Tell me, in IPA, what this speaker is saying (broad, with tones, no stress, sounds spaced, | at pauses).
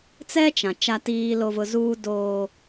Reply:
t͡s ɛ˦ t͡ʃ ã˨ t͡ʃ a˦ t iː˦ l o˦ v ʊ˦ z uː˦ d oː˦